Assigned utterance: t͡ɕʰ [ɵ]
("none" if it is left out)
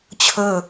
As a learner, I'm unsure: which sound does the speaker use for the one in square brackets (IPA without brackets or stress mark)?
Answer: ɵ